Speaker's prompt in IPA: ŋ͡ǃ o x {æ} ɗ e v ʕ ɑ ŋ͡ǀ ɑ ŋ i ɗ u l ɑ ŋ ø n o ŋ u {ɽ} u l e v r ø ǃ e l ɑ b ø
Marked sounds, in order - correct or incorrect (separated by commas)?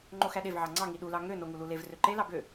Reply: correct, incorrect